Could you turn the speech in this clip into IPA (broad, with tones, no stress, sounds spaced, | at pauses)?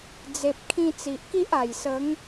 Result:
d͡z e˨ p̚ kʰ ĩ˧ t͡s i˨ ʔ k i˦ ʔ a˨˩ j s ə˨˦ ŋ